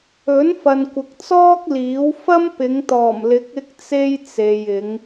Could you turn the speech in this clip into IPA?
ɵ˨˥ n f ɐ˨ n kʷ ɪ˨ k̚ t͡s ɔː˥ k̚ l iː˨˥ w f ɐ˥ m p ɪ˨˧ ŋ t̪ ɔː˨˩ m l ɪ˨˥ k̚ ɪ˥ k̚ t͡s e˥ j t͡s e˨ j ɪ˨˧ ŋ

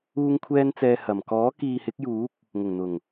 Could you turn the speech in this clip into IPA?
uː˧ ŋ kʷʰ ɛː˧ n t͡s ɛː˨ h ɐ˨˩ m k ɔː˨˥ k iː˨ h ɪ˨˥ k̚ j uː˨˥ k̚ | ŋ ʊ˨˩ ŋ n̪ ʊ˨˩ ŋ

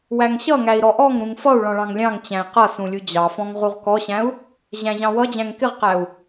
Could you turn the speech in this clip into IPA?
w æ ŋ ɕ ʌ ŋ æ i̯ ɾ ɔ ʔ ɔ ŋ ɾ ũ ŋ f ʌ u̯ ɭ ɔ̃ ɭ ɑ̃ ŋ lʲ ɑ̃ ŋ t͡ɕ æ̃ i̯ q ʌ s ũ lʲ u d͡ʑ ɑ f ɔ̃ ŋ ʁ u ʁ k ɔ ɕ æ̃ u̯ | ʑ æ̃ ʑ ɑ̃ w ʌ d͡ʑ æ̃ ŋ k ɪ ʁ q æ u̯

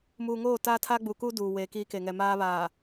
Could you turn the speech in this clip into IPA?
m uː˨ ŋ oː˦˨ t aː˦ tʰ a˦ ɡ͡b u˨ k uː˦ d uː˨ w e˨˦ k iː˦ k e˨ ŋ ɛ˨ m aː˦ β aː˨

